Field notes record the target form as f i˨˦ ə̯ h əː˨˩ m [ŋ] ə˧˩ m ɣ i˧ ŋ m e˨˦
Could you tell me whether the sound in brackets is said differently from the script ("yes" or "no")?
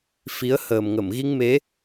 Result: no